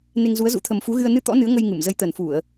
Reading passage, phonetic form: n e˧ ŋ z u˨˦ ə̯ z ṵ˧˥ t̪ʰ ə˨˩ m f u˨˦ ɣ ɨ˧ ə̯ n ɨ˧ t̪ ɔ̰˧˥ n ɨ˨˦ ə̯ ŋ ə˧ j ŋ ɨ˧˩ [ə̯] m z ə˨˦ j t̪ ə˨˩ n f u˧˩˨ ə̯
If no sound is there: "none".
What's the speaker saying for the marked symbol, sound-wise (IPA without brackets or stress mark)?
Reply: none